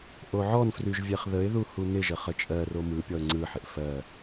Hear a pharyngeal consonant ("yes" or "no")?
yes